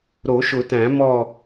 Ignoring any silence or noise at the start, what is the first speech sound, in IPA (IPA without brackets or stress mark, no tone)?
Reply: ɾ